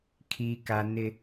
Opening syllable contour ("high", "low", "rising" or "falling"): high